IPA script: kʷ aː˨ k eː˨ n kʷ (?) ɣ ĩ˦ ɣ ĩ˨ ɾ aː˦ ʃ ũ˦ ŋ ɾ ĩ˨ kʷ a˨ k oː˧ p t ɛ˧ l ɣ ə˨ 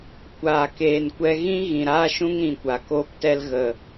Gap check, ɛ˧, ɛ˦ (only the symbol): ɛ˧